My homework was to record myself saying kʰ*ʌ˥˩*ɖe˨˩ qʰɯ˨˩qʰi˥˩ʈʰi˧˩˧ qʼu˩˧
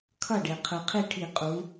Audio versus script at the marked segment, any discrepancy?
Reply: no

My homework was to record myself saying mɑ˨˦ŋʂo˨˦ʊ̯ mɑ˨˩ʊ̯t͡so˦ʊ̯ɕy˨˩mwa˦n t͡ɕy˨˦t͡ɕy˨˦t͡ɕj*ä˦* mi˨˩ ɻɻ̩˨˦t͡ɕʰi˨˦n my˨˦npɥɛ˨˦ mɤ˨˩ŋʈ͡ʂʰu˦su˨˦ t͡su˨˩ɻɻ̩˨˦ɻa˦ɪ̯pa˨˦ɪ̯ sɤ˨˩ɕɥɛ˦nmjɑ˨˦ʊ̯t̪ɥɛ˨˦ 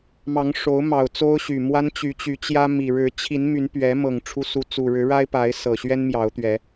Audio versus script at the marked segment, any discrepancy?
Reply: no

